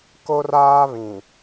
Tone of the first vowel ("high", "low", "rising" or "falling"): high